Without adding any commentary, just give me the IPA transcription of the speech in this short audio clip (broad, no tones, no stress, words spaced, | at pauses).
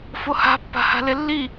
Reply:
foha̤ pːa̤ha̤lelːi